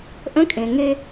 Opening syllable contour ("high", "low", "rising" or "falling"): rising